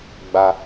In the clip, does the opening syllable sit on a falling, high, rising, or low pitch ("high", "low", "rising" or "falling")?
high